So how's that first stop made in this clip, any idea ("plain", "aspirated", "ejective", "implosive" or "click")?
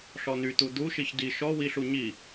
plain